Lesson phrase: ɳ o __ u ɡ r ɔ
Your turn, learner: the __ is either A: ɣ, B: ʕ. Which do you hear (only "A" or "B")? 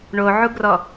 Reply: B